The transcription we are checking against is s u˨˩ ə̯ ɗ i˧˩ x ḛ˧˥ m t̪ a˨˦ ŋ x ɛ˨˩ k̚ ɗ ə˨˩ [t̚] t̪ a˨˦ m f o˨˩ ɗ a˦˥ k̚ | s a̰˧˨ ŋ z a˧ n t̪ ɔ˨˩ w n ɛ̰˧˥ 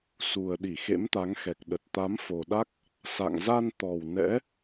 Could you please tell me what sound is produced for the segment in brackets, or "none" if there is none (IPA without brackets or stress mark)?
t̚